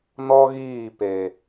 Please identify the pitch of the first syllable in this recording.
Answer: high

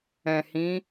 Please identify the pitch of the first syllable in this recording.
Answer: low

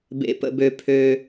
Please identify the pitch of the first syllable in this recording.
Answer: low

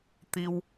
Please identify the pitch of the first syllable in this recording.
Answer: low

